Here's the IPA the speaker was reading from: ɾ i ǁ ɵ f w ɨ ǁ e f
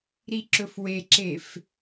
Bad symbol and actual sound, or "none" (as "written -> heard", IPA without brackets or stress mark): ɨ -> e